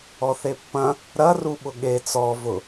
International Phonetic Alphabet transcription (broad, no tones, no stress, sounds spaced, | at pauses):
ɔ θ e pː ɐ̃ | ɾ ɐ r u ɓ ʊ ɠ e t͡s ɔ v ʊ